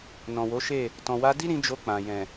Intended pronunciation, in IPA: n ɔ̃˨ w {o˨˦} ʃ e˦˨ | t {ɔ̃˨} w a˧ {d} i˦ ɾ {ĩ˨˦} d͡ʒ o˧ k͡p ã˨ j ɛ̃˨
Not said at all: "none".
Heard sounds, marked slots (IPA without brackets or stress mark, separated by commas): o˨˦, ɔ̃˨, d, ĩ˧